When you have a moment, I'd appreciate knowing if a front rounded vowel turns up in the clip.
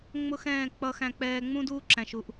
no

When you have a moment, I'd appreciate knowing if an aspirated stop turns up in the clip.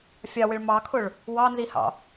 yes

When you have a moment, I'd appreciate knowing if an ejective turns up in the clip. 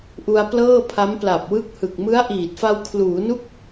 no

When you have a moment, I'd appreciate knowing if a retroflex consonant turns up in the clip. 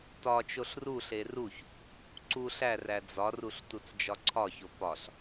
no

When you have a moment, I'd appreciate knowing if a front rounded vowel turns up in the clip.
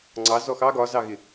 no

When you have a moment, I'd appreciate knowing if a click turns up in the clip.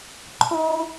yes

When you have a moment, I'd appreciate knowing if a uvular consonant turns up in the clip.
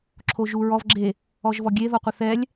yes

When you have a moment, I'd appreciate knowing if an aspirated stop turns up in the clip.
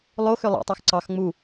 no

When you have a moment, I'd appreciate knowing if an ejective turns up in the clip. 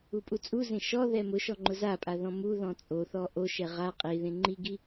yes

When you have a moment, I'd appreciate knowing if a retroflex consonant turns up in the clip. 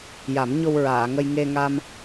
no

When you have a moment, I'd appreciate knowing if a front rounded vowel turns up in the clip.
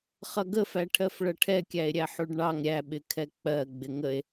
no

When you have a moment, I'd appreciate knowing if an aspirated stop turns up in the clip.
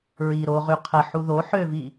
yes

